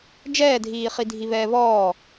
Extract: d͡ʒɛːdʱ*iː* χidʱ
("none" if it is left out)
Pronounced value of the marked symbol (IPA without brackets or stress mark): iː